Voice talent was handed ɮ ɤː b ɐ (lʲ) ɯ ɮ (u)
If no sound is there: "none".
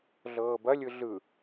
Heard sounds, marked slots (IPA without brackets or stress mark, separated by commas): lʲ, ɯ